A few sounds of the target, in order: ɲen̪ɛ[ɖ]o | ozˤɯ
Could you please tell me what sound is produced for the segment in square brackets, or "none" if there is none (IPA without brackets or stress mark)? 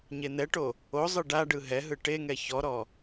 ʈ